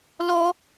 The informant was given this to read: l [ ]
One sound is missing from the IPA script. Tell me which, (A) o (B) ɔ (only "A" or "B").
B